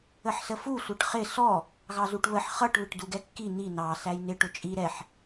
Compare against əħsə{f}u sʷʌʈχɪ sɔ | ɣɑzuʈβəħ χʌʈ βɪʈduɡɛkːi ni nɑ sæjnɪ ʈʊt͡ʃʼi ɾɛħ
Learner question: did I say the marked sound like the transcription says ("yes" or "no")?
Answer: yes